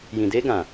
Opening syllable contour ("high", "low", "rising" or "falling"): low